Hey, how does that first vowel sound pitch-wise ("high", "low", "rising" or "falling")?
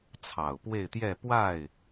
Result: low